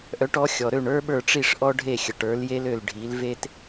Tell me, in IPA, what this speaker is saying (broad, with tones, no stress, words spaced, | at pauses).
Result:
ʔœ˩˥ʈɔ˩˥ xʲɔ˩ɾø˥˩ɳ ə˞˥ɓə˞˥˩ʈ͡ʂi˥˩ʂ ʔɔ˥ɖʱe˥˩xʲə˩ʈ ə˞˩˥lje˥lø˥˩l ɖʱi˩˥lve˥t